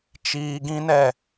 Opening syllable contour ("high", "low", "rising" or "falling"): high